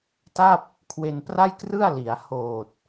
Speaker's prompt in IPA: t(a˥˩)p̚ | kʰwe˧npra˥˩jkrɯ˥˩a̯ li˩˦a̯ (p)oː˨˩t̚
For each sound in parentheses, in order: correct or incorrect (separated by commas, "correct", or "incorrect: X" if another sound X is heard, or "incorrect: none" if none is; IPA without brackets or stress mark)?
correct, incorrect: h